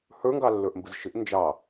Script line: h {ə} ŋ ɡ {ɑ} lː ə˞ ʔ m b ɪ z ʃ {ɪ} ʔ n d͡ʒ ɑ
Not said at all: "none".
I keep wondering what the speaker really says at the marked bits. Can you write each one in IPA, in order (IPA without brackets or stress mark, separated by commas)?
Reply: ə˞, ɑ, ɪ